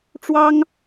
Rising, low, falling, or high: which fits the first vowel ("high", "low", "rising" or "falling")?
high